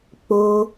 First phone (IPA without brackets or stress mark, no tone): k͡p